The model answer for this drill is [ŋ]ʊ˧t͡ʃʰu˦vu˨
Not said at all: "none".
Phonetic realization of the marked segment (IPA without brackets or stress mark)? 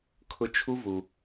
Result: kʰ